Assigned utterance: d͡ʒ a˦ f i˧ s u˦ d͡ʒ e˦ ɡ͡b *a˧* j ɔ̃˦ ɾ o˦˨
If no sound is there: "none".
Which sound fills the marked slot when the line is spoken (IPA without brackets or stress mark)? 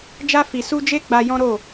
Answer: a˧